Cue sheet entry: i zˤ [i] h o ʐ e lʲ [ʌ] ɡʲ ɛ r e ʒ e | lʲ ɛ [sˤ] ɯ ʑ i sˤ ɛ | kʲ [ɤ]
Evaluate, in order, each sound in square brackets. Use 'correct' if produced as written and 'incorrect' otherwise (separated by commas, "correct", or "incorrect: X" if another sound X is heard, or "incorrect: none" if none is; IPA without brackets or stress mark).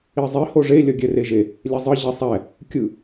correct, correct, incorrect: zˤ, incorrect: ɯ